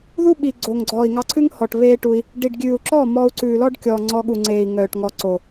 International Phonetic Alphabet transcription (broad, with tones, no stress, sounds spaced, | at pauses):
ð u˦ ɓ i˨ ɡ͡ǀ o˨ ŋ ɡ͡ǀ ɔː˨ i̯ ŋ ɑ˧ ǀʰ ʉ˦ ŋ h ɔ˨ ʈ β eː˦ ʈ u˧ i̯ | ɖ i˨ ɖ ɡʲ ʉː˨ u̯ ǁ ɔ˦˨ m ɔː˧ u̯ ǀ ʉː˨ l ɔ˦ ɖ kʲ ɔː˨ ŋ͡ǀ ɔ˧ ɠ u˨ ŋ͡ǀ eː˨ i̯ ŋ œː˨ ʈ ŋ ɔ˨ ǀ o˨